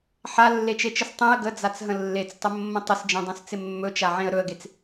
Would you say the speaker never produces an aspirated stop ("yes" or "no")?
yes